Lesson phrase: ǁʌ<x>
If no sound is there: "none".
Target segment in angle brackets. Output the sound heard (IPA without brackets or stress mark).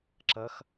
x